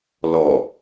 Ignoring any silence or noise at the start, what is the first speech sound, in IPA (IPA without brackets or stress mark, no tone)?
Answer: l